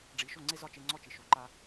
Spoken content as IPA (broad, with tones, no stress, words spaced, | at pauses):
ɖ͡ʐi˩˥ ʃo˥˩ŋ͡ǀe˥zɒ˥˩ t͡ʃe˧ŋ͡ǀɔ˥˩t͡ʃi˩ ʃo˩ǃa˧